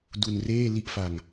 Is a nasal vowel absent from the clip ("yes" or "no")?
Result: yes